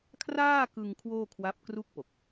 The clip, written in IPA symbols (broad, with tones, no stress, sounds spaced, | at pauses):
kʰ r aː˥˩ k ɯ˧ ŋ kʰ w oː˥˩ kʰ w a˦˥ p̚ k r u˥˩ k̚ p o˨˩ k̚